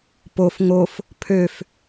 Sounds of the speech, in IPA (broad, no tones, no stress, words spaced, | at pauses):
pof ŋof | pʰøf